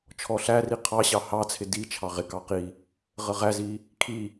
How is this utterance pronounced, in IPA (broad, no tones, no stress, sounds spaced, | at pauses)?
t͡ʃʰ ɔ ɬ æ r i qʰ ɑ ɕ ɑ h ɑ t͡sʰ ɪ d i t͡ʃʰ ɑ ʁ ɪ k ɑ q i | ʁ ə ʁ æ z i | kʰ i